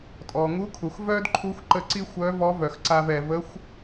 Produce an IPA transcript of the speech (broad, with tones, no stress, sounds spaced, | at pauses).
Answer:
tʼ ɔ˩ ŋ u˧˥ kʰ u˩ x v œ˥ d ǃʰ u˧˥ xʷ ǃ ə˧ ǀ i˥ xʷ œ˧˥ v ɔ˧˥ v œ˩ x ǀ a˧ v ɛ˩ v ə˧˥ xʷ